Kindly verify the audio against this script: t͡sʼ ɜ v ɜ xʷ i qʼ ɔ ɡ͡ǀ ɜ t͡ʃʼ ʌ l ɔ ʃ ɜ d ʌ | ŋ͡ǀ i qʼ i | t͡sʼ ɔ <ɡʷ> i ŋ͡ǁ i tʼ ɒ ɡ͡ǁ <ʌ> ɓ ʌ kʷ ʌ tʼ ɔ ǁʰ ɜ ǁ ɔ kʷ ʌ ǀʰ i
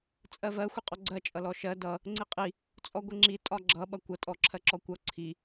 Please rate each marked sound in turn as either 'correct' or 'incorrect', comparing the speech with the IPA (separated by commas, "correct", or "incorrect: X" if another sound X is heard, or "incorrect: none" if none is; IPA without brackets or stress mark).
correct, correct